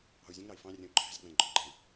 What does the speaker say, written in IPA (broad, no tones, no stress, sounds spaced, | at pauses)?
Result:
ɑ̤ u̯ zʲ ə̃ ŋ ɾ ɑ i̯ f ɑ̃ rʲ ə̃ u̯ ǃʰ æ̤ z ɡ͡b æ̃ ɡ͡ǃ ɔ̤ ɡ͡ǃ æ̃ i̯